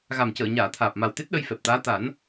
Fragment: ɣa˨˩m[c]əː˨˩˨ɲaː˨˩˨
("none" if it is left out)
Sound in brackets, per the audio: c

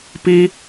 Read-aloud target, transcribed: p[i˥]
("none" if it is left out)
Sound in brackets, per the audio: i˥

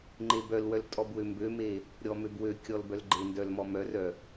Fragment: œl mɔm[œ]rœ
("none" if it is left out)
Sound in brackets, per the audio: œ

